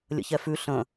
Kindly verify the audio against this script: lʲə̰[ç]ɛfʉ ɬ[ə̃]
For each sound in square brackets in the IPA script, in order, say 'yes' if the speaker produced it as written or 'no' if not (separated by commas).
yes, yes